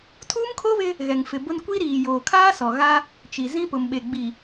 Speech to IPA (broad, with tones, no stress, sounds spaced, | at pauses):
tʰ uː˦ m kʰ o˦ β ɪ˦ | ɣ ɛ˨ ŋ f ɪ˨ b ʊ˦ n kʷ i˦ ɾ iː˨ j oː˨ kʰ aː˦ s ɔ˨ ɣ a˦ | t͡ʃ i˨ z ĩ˦ p ʊ˨ m ɓ e˨ ɡ͡b i˨